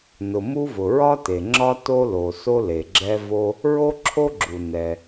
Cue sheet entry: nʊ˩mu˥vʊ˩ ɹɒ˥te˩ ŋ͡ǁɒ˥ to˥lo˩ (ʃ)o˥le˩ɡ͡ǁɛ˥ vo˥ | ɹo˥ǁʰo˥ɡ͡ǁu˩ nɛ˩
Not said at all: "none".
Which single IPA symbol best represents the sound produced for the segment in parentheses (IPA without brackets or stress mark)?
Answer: s